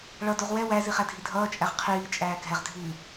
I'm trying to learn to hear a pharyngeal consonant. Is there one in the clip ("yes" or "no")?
no